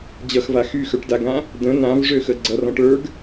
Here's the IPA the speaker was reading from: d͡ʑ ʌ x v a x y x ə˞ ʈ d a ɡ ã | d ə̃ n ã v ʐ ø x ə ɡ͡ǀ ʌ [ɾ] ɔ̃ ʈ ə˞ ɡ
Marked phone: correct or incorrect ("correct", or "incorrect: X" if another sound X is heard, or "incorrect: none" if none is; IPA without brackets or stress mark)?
incorrect: r